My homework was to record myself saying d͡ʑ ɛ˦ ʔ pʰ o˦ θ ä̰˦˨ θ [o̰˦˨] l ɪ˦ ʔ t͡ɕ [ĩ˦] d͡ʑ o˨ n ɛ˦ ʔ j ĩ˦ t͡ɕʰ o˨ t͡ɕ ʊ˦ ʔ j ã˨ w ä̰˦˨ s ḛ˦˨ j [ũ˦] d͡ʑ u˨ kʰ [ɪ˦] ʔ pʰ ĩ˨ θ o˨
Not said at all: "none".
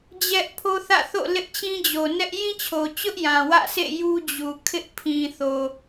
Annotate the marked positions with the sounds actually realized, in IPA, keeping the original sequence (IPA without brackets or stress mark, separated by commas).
o̰˦˨, ĩ˦, u˦, ɪ˦